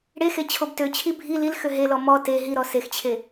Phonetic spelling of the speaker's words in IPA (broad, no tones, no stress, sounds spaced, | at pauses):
ɽ e x e t͡ɕʰ o b t ø t͡ɕʰ i bʱ i l i l x ø ɦ e l ɔ m ɔ t e ɦ i ɾ ɔ s e x t͡ɕʰ e